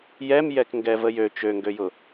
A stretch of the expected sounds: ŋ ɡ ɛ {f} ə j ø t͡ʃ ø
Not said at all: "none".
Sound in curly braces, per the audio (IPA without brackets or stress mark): v